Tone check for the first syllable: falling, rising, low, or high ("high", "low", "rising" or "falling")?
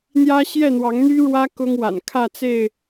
high